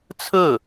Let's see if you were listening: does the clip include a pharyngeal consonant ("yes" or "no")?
no